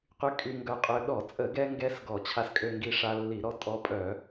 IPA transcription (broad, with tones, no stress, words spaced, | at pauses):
qy˧ kʼy˧ŋɡœ˧qʼø˧ ɗɔ˧˩˧t͡sʼə˧˩˧ɡɛ˧ŋɡɛ˧s ɡɔ˧˩˧t͡ɕʰa˧skʼø˧ŋɡi˧ ʂa˧lːi˧˩˧ɾɔ˧ tʼɔ˧pʼœ˧˩˧